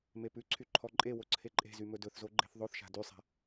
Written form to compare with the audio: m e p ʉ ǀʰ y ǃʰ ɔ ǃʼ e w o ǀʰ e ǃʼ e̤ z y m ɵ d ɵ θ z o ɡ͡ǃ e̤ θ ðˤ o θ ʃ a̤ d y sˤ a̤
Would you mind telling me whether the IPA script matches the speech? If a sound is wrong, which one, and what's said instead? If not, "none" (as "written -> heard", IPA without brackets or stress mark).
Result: none